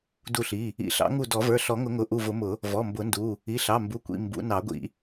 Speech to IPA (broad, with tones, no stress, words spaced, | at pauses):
du˧˩ɬi˩˧˩ | ḭ˨˩˦ɬɑ̰˨˩˦ ŋu˧˩dɔ˨˩˦ və˞˩˧˩ɬɔ˨˩˦ŋʊ˨˩˦ŋʊ˩˧˩ ʔu˧˩vʊ˨˩˦mʊ˨˩˦ | vɔ˩˧˩mbʊ˨˩˦ndu˩˧˩ | i˩˧˩ɬɑ˩˧˩ mbu˩˧˩kʷḭ˩˧˩ mbṵ˨˩˦ nɑ˨˩˦ɡʷḭ˨˩˦